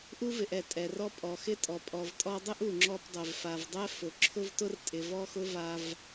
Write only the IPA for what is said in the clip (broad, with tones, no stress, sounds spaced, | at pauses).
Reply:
ʔ u˥ v ɪ˨ ʔ ɛ˩ tʼ ɛ˨ r ɔ˥ pʼ ɔ˩ x ɪ˦ tʼ ɔ˩ pʼ ɔ˨ v tʼ ɔ˦ dˤ ɪ˥ ʔ u˨ ŋ͡ǁ ɔ˦ p dˤ ɛ˩ v f a˩ v dˤ ɛ˥ f ʊ˩ ǁʰ ʊ˦ v t ʊ˦ r tʼ ɪ˨ v ɔ˥ x ʊ˥ v a˦ v